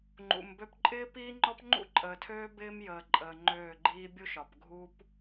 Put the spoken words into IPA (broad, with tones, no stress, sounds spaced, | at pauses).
ŋ͡ǃ ṵ˨ m b ø˦ p ǃʼ ɪː˦ p iː˦ ŋ͡ǃ ɔ˦ p ŋ͡ǃ ṵ˦ ǃʼ əː˨ tʰ øː˦ b ɪː˦ m j əː˨ ǃʼ əː˨ ŋ͡ǃ øː˦˨ ɡ͡ǃ iː˦ bʲ u˦ ʃ ɒ˨ p ɡʱ u˦ p